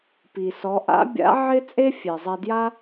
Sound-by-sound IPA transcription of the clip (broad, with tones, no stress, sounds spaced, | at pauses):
p i˩ s ɔ˩˧ ʔ a̰˧˥ bʲ a̰˧˥ ʕ ɪ˥ t͡sʼ e˥ fʲ e˩ zˤ ɛ˧ d j a˥